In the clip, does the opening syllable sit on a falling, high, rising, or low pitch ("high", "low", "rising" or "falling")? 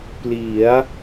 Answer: rising